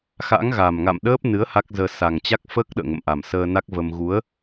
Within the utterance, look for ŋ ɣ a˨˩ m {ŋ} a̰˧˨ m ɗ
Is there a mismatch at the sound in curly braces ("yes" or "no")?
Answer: no